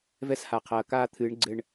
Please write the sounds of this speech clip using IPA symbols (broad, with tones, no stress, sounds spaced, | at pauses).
v ɛ˦ s h a˨ qʰ ɐː˨ k aː˦ t̪ʰ ɨː˨˦ ɳ ɡ͡ǀ ɘ˦ ɳ